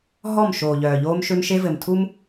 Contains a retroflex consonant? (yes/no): no